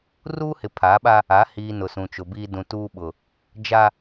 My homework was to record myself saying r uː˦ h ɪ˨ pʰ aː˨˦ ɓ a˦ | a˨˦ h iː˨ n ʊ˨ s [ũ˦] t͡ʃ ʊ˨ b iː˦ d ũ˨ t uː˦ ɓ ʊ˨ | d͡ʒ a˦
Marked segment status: incorrect: ũ˨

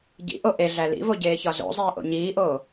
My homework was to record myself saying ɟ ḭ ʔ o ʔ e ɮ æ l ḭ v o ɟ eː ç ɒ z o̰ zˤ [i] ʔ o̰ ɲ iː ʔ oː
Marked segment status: incorrect: iː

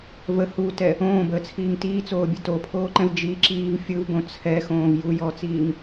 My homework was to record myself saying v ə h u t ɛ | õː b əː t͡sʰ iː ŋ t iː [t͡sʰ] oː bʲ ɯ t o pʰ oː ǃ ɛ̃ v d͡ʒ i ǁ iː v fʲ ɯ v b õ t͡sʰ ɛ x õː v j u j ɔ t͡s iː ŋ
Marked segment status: incorrect: t͡s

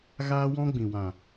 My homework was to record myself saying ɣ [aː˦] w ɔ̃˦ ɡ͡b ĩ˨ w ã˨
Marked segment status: correct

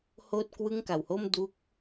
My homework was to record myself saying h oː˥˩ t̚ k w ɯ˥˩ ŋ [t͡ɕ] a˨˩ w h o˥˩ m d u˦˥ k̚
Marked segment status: incorrect: k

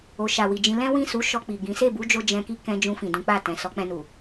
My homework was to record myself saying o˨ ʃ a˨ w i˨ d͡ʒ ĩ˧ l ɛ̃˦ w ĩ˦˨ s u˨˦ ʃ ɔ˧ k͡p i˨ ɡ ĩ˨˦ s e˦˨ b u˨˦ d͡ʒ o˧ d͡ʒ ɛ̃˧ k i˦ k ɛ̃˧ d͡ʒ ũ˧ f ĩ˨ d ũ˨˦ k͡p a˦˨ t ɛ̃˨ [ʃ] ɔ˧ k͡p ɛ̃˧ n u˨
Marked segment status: incorrect: s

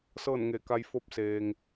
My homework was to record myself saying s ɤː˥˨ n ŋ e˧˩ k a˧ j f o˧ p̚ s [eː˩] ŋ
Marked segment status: correct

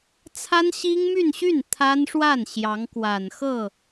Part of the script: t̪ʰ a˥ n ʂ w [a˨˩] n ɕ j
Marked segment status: incorrect: a˥˩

